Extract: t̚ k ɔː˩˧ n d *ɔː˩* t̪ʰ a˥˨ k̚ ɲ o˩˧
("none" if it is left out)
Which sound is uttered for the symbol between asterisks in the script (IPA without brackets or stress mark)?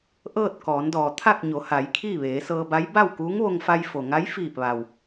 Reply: ɔː˩